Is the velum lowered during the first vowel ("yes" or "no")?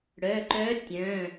no